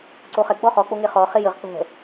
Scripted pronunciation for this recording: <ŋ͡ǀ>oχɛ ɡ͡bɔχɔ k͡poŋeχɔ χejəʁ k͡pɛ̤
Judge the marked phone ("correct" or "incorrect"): incorrect